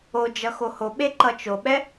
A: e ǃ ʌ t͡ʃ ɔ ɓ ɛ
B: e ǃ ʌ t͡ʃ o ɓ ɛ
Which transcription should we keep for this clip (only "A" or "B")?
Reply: B